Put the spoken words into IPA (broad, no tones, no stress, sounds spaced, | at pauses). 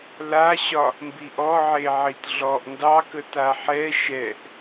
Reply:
l a ɕ ɒ | m b i ʔ ɔ ʕ e ʕ i t ɮ ɔ ʔ n d ɑ k ə t a ħ ɛ ʃ ɛ ʔ